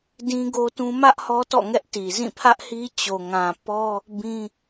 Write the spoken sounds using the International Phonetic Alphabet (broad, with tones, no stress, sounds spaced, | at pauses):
d ĩ˦ ɡ o˦ t ũ˦ m ä˦ ʔ h ɔ˦ t ɔ̰˦˨ ŋ ɛ˦ ʔ t i˨ z ĩ˦˨ pʰ ä˦ ʔ h i˦ t͡ɕ o˨ ŋ ã˨ p ɔ˦ | b ĩ˦